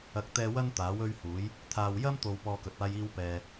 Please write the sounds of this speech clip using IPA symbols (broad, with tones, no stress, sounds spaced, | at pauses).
ɐ˨ k̚ t̪ ɛː˧ w ɐ˥ n t̪ aː˨˥ w ɵ˥ ɥ h uː˨˥ j | t̪ʰ aː˨ w j ɐ˥ m t̪ o˨ w p ɔː˧ k ɵ˨ t̚ aː˥ j iː˥ w p ɛː˧